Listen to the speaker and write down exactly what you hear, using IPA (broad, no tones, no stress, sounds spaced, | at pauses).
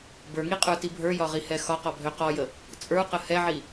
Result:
b ə˞ ŋ i qʼ ə˞ t i bʱ ə˞ j ɒ ʁ i h ɛ x ɒ q ɔ bʱ ø q ɔ j ə | t͡sʼ ə˞ q ə h ɛ ʕ i